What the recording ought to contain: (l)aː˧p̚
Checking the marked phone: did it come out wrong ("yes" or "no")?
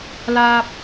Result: no